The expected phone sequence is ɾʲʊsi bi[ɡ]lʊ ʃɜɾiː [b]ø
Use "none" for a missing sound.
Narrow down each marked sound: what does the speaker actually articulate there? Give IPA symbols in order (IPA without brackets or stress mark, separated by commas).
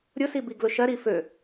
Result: ɡ, f